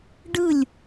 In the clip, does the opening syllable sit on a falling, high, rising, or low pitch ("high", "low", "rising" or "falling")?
falling